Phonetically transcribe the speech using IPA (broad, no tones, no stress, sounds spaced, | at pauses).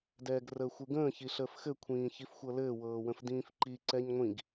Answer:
d ɛː ɡ r əː xʷ ɯ ɡ ə̃ː ç i ɬ əː f x ɘ kʷʰ ĩː ç i f xʷ ɤ l ɘː w ɤː w ə̃ f d ĩː f ǃ i ǀ ɛ ɲ ŋʷ ĩ ɡ